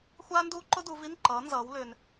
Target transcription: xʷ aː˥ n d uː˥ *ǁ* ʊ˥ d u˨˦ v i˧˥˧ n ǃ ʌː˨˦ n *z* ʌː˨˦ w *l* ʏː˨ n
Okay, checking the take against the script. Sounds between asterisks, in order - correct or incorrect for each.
incorrect: ǃ, correct, correct

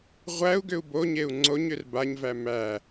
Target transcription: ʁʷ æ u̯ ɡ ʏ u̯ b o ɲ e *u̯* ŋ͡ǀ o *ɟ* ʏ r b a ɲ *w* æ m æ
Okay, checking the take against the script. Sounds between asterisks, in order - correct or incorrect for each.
correct, incorrect: ɲ, incorrect: v

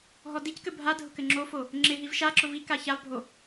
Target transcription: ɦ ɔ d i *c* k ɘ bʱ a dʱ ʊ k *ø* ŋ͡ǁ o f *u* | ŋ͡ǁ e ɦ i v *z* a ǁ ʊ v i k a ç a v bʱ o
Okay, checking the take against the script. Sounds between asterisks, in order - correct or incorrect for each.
correct, incorrect: ɘ, incorrect: o, incorrect: ʃ

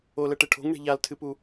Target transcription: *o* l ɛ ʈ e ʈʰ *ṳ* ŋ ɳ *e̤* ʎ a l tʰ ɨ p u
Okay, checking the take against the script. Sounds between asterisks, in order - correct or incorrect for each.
correct, incorrect: o̤, correct

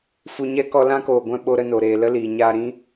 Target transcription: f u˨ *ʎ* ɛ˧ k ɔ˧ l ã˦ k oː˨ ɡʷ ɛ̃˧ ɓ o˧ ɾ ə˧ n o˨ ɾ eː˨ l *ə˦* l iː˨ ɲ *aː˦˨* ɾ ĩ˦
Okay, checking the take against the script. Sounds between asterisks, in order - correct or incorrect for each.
incorrect: ɲ, correct, incorrect: aː˧

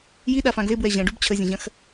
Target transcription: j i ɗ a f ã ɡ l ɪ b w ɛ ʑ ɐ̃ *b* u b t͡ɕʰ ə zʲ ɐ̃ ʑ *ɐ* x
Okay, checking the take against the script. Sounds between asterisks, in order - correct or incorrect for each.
incorrect: ɖ, incorrect: ɐ̃

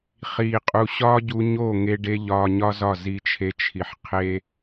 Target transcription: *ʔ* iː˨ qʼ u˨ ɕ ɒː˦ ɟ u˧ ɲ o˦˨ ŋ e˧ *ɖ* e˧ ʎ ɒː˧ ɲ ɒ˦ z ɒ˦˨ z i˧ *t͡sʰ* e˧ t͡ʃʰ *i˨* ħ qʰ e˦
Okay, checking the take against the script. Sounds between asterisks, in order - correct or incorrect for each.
incorrect: χ, correct, incorrect: t͡ʃʰ, correct

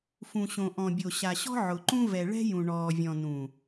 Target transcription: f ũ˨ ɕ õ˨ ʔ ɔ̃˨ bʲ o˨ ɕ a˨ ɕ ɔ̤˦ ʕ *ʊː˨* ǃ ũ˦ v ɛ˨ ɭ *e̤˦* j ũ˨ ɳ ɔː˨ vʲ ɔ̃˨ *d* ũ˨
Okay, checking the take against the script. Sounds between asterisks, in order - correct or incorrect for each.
incorrect: ʊ˨, incorrect: ɛ̤˦, incorrect: n

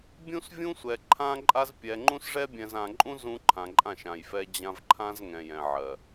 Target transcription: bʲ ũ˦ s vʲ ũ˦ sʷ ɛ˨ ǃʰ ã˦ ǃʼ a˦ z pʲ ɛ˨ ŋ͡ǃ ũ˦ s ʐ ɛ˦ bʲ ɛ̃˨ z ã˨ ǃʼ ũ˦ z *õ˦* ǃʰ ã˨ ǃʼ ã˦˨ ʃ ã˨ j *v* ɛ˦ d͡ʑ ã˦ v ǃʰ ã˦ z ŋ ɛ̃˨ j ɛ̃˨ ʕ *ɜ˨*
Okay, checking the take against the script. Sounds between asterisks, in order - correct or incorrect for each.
incorrect: ũ˦, incorrect: f, correct

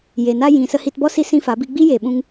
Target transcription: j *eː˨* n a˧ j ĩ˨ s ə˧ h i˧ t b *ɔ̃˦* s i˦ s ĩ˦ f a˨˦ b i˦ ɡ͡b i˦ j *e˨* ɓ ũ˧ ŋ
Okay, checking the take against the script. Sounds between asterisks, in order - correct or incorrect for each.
incorrect: e˨, incorrect: ɔ˦, correct

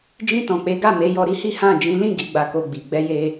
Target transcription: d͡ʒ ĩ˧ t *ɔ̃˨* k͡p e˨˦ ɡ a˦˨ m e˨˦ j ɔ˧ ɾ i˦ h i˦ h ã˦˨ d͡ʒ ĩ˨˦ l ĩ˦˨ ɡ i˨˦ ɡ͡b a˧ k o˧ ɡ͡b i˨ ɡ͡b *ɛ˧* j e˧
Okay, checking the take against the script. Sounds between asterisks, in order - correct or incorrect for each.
correct, correct

